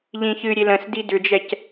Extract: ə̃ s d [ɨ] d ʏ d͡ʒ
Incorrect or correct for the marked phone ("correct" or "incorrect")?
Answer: incorrect